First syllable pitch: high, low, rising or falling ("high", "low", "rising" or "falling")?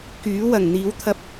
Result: rising